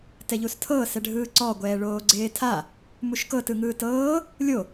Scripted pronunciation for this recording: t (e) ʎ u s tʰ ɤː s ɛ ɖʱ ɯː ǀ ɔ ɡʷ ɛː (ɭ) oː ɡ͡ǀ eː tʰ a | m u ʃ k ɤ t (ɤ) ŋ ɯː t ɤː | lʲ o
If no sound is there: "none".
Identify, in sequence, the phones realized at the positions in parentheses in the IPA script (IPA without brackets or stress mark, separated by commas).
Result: ɛ, ɭ, ɯ